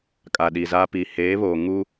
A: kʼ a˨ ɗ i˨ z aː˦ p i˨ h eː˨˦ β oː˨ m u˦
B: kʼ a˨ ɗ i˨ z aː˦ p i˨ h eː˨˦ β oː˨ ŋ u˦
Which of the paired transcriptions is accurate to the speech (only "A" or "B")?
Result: B